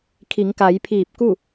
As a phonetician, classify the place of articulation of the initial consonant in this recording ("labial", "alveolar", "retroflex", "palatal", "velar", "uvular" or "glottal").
velar